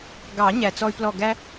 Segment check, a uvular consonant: absent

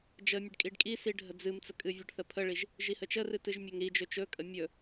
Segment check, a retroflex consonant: present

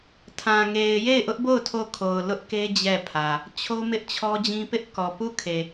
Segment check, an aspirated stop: present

